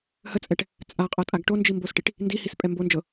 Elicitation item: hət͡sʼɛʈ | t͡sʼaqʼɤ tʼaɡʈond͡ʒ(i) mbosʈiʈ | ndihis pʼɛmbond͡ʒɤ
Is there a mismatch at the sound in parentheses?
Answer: no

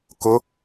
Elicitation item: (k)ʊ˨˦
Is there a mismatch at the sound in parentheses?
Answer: no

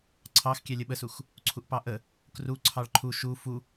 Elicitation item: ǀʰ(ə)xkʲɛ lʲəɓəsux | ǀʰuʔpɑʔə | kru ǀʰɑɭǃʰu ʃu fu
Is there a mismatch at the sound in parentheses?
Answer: yes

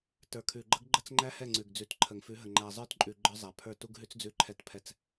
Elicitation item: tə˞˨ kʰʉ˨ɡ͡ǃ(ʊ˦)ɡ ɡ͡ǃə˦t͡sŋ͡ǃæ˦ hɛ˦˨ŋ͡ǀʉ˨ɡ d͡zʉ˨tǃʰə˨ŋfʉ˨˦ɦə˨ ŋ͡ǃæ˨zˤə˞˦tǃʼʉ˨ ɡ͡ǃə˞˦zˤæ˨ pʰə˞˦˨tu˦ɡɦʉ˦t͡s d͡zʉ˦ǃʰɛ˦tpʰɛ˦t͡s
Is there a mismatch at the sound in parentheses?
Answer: yes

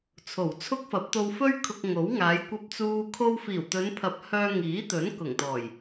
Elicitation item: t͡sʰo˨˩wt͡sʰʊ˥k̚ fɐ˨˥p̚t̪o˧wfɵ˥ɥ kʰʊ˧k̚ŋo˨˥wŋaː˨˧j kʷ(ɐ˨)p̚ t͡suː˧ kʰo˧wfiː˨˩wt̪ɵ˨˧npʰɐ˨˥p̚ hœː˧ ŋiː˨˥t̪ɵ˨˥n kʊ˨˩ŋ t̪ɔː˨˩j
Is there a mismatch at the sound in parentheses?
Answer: yes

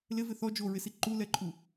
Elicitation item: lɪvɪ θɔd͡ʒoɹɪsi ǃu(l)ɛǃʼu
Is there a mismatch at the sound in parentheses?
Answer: no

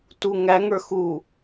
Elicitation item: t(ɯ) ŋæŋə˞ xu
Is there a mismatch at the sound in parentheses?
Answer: yes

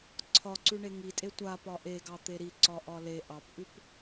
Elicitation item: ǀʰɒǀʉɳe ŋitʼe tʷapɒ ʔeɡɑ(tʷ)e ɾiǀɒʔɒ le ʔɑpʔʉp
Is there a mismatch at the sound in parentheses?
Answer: yes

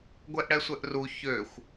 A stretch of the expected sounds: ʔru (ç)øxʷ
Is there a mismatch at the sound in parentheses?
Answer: no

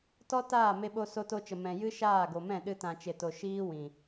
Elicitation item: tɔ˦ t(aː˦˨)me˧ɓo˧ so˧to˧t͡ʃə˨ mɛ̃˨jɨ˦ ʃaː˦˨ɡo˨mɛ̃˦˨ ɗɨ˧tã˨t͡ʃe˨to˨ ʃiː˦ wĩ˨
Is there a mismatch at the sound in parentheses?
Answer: no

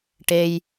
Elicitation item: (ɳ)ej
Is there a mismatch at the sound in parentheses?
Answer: yes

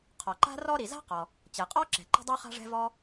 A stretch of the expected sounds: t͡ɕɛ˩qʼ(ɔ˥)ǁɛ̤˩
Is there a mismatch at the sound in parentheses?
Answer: no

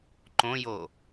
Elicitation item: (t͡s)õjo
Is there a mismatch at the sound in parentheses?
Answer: yes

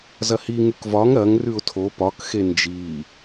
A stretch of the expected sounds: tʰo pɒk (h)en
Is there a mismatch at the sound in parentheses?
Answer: yes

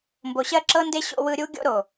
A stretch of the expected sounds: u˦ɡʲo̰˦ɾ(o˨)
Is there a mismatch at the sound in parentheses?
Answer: no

